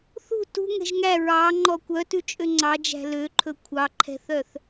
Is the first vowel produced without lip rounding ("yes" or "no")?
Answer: no